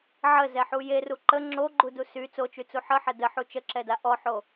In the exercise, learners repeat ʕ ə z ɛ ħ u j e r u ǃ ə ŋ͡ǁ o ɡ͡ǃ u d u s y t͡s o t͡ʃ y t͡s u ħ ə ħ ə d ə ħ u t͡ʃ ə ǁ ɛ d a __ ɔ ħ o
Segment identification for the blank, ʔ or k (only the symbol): ʔ